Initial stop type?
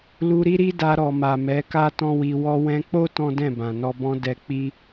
plain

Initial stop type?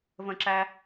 click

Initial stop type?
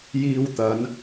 plain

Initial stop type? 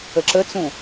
click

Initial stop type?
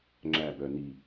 click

